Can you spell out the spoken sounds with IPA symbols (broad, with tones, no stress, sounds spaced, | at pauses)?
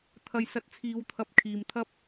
t̪ʰ ɐ˧ j s ɐ˧ t̚ t͡sʰ iː˨˧ w t̪ʰ ɐ˨˥ p̚ kʰ iː˨ m t̪ʰ ɐ˥ p̚